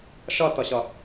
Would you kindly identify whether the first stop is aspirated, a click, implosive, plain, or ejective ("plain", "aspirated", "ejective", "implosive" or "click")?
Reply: plain